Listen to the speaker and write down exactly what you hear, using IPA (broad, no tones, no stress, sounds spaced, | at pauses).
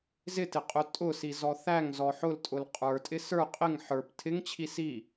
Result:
z ɪ t ɪ qʼ ʊ tʼ ʊ s i z ɔ θ æ ŋ z ɔ ħ ʊ l tʼ ʊ l qʼ ə˞ tʼ ɪ s ə˞ qʼ ɪ ŋ ħ ə˞ p tʰ ɪ ŋ t͡ɕʰ i s i